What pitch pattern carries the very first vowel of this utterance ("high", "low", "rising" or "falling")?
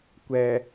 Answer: low